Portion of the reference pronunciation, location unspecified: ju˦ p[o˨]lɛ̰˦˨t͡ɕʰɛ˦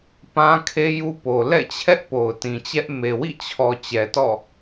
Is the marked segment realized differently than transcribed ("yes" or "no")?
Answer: no